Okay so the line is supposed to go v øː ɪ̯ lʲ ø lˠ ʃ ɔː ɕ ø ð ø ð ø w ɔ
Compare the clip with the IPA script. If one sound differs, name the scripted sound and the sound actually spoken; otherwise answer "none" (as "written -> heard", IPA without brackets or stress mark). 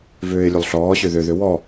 ʃ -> ɬ